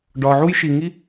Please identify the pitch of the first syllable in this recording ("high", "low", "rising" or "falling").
low